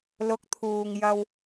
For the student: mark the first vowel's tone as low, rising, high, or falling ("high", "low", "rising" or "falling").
rising